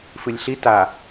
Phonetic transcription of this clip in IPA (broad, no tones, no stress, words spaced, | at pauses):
fɨlʲɬi ta